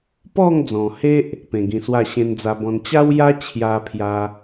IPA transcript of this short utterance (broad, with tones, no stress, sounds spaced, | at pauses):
p ɔ˥˧ ŋ d͡z ɔ̃˨˩ h e˦ ʔ | p ẽ˨˩ ɡ ĩ˨˩ s w a˥˧ ɕ ẽ˧ n d͡z a˧ b ɔ̃˧ n t͡ɕ a˦ w j a˦ t͡ɕʰ j a˦ pʰ j a˦